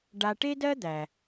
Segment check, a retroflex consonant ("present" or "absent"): present